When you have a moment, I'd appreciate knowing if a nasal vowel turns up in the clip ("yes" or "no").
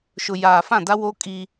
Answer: yes